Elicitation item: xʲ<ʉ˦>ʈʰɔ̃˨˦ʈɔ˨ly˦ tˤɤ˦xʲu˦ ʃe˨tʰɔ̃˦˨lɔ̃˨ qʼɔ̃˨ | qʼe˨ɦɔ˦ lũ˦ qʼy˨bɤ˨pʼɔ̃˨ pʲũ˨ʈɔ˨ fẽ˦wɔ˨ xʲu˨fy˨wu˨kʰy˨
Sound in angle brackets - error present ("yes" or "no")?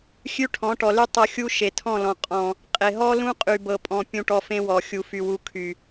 no